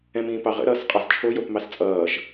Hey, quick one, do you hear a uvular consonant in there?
yes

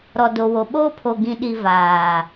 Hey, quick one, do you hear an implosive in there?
yes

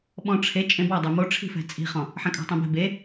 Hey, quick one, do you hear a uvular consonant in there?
yes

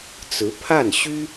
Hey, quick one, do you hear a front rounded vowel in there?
yes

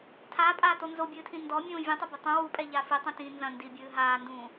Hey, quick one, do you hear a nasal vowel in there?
yes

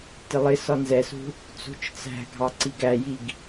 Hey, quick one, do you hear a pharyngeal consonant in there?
no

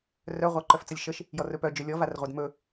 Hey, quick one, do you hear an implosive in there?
no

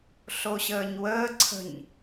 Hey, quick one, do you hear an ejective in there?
no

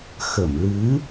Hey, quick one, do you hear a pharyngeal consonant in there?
no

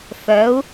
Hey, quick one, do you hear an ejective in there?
no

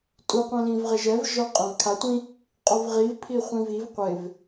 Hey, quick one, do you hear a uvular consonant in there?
yes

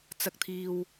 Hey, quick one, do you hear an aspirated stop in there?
yes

